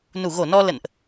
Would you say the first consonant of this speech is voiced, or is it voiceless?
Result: voiced